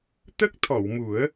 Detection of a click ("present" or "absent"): absent